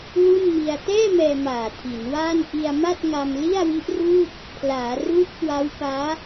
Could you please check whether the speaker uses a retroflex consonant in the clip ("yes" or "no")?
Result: no